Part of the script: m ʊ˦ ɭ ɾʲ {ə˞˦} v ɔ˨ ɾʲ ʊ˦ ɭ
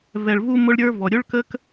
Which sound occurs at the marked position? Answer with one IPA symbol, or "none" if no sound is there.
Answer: ə˞˦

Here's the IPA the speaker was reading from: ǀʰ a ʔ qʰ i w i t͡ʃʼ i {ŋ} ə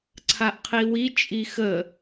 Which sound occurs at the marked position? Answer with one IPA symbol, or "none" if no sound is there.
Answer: x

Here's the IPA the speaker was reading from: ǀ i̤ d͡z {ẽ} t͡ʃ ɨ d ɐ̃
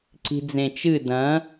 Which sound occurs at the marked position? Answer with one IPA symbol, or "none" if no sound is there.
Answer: ẽ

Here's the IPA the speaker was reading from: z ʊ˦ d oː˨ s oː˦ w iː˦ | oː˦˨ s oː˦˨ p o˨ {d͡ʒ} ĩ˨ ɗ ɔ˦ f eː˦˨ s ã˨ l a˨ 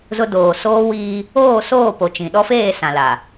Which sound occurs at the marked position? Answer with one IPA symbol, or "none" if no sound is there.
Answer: t͡ʃ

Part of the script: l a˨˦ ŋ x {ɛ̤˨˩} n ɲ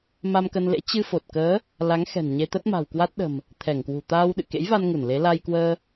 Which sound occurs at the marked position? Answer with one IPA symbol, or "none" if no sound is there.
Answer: ɛ̤˨˩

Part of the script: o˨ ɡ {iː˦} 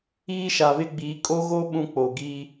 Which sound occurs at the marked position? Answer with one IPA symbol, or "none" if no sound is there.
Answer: iː˦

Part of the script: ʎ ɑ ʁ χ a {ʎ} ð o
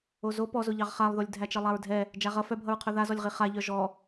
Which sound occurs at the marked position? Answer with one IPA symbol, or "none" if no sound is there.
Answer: lˠ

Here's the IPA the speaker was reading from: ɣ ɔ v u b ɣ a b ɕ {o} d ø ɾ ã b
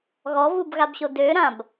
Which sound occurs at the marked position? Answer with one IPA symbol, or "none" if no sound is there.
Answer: o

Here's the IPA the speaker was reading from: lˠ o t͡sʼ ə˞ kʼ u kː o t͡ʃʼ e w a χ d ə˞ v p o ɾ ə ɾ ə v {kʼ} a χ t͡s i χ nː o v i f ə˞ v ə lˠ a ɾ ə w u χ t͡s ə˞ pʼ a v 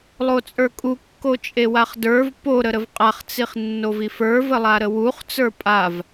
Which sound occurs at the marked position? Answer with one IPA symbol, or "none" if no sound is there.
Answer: qʼ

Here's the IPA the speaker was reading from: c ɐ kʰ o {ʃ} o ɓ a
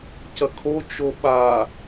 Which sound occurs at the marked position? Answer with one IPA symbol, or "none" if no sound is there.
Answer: t͡ʃ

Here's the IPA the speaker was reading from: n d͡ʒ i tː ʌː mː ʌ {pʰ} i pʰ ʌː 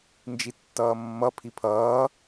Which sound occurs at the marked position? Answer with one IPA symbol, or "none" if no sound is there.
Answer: pʰ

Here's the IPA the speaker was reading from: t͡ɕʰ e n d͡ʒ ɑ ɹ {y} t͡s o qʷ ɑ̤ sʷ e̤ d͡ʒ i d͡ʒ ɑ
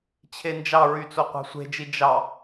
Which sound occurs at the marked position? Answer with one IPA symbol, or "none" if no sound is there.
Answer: y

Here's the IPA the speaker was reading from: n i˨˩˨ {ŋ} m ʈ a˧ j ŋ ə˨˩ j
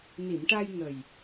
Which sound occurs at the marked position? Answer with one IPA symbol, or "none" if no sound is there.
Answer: none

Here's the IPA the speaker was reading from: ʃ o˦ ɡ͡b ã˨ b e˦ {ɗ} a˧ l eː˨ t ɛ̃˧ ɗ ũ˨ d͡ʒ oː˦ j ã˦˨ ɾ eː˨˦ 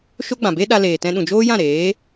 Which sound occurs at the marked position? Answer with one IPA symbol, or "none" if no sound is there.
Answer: ɗ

